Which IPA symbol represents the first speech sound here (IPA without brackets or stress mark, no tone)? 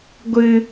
ɡʷ